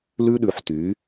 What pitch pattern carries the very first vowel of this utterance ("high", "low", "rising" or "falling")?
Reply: high